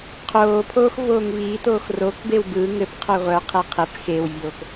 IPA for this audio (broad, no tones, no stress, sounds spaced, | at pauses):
qʰ oː pʰ oː x v oː ŋ v iː t oː x r o k b e w b ɯ ŋ ɘ p qʰ œ ʁʷ œ qʰ e qʰ e p x e w vʲ oː k